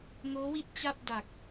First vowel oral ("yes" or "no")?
yes